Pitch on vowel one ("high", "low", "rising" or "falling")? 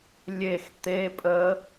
falling